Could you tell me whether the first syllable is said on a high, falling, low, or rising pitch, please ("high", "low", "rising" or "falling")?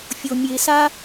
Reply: low